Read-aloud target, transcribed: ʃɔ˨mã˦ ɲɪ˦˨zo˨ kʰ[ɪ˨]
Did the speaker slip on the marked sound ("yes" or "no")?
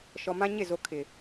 no